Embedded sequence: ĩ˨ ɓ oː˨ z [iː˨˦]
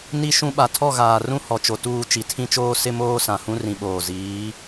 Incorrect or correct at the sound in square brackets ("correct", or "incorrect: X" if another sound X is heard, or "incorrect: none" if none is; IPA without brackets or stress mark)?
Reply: correct